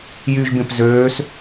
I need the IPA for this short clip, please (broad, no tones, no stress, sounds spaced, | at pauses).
j y ʒ b ẽ p z øː s